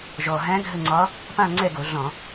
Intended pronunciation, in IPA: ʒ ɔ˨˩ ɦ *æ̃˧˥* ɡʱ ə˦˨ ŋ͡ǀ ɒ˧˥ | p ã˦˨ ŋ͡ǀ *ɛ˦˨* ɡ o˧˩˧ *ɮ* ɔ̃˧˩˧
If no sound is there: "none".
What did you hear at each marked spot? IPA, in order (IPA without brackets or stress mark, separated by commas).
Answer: æ̃˧˥, ɛ˦˨, ɮ